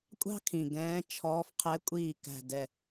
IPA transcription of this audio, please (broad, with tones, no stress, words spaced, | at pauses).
kʷʼɑ̤˥kʰĩ˨˩ ɡɛ̃ː˧˥t͡ʃʰɔː˧˥f qʰɛ˧˥kʷʼiː˦˨ kæ̤˦˨dɛ˦˨